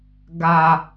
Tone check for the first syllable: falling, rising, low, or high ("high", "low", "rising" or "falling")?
low